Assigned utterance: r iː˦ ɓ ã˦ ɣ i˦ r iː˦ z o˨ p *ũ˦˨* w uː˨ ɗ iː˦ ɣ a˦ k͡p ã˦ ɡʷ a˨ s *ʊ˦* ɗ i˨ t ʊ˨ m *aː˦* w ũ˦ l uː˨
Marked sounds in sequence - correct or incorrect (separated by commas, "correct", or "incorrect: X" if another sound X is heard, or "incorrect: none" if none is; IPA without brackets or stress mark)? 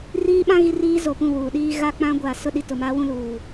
correct, correct, correct